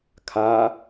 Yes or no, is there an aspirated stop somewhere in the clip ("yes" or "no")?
yes